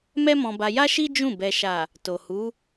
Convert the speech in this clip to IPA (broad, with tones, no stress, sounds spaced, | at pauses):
m ɛ˦ m ɔ̃˧ b a˧ j a˦ ʃ i˦ d͡ʒ ũ˦˨ b ɛ˨ ʃ a˨ | t o˨ h u˨˦